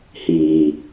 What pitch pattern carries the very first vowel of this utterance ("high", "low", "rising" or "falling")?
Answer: low